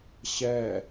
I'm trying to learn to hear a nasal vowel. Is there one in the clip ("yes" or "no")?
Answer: no